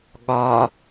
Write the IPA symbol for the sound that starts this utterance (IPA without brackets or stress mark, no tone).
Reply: ɠ